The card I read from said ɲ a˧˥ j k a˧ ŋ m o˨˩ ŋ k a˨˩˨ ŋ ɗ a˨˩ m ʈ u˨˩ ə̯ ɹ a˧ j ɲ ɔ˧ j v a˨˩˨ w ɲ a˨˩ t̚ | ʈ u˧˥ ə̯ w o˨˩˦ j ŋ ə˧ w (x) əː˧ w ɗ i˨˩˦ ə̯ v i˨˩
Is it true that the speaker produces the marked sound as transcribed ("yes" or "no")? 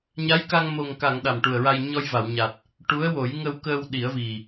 no